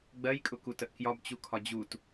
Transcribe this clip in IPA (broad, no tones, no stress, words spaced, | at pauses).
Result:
ɡ͡bɜjkʼʊkutəʔ kjɒbt͡ɕukʰɒ d͡ʑut